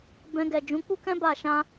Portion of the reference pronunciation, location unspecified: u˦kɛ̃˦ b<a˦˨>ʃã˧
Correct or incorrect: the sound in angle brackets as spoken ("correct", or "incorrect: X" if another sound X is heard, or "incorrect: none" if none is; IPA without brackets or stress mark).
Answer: correct